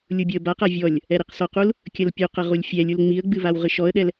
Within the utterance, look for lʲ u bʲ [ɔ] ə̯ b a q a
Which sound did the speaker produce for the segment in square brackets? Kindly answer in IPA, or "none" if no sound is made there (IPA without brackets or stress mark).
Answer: ɔ